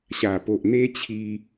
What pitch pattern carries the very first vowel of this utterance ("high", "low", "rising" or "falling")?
low